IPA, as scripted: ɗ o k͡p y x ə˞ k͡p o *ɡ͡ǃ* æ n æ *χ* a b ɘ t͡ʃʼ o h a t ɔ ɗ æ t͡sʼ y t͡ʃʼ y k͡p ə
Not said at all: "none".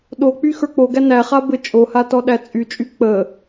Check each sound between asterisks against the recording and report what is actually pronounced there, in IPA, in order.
ɡ, χ

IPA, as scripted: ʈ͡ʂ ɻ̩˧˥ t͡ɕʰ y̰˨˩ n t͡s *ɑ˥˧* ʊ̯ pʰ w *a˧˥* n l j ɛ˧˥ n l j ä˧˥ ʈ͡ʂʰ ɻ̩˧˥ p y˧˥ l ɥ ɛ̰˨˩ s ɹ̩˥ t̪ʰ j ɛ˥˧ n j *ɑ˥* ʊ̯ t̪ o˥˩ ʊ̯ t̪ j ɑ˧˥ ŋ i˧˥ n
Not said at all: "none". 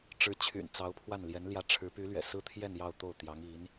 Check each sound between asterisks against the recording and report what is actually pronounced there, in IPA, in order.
ɑ˧˥, a˥˩, ɑ˥˧

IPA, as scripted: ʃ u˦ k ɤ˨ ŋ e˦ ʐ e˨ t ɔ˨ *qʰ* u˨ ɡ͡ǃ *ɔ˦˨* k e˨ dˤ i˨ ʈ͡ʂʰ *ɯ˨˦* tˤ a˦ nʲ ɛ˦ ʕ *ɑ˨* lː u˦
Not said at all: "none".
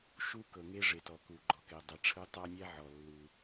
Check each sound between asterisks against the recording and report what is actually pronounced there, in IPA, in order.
k, ɔ˨, ɯ˦, ɔ˨

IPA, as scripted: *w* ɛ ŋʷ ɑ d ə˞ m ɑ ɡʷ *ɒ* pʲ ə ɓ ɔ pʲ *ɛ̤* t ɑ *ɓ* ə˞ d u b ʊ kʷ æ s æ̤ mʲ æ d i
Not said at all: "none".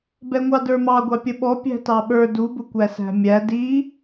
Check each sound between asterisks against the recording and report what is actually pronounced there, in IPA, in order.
b, ɑ, æ̤, ɓ

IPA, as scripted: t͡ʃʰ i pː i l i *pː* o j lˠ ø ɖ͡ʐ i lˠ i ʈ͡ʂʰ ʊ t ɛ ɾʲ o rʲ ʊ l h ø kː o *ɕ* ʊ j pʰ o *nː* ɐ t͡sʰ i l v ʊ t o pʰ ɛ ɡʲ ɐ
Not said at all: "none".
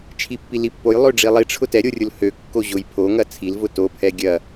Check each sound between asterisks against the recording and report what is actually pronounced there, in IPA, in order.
pː, ʑ, ŋ

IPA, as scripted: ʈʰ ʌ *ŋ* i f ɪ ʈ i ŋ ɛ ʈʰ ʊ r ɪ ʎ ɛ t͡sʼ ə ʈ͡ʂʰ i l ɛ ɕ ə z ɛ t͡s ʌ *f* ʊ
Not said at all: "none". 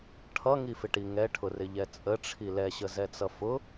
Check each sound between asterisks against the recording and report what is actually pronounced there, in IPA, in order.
ŋ, f

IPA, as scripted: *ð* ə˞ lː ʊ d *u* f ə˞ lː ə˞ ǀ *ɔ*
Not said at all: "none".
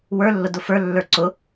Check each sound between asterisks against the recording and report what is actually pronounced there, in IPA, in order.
w, ʊ, ʊ

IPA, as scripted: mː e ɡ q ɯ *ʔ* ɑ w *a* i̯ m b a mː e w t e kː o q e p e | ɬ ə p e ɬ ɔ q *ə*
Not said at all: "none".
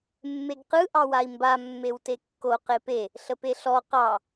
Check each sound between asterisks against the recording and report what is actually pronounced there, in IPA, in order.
ʔ, a, ɑ

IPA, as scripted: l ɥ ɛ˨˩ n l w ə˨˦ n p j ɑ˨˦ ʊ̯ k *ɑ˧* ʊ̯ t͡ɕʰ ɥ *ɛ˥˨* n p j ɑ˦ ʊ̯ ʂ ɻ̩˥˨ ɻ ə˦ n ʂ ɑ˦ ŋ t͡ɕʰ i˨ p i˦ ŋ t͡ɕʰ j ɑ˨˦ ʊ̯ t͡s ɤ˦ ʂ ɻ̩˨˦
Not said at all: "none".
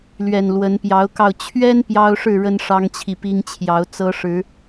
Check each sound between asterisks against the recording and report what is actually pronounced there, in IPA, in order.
ɑ˧, ɛ˦

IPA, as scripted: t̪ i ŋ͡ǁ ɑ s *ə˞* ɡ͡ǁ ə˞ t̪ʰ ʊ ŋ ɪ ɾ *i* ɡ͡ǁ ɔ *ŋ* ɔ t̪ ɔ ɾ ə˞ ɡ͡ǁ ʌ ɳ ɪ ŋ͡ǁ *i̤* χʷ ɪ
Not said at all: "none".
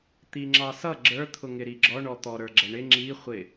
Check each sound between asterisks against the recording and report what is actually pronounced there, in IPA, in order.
ʌ, i, ɳ, i

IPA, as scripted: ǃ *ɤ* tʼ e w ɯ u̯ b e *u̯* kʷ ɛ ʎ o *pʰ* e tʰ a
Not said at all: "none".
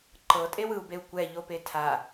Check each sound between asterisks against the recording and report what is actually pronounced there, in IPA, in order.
ɤ, u̯, p

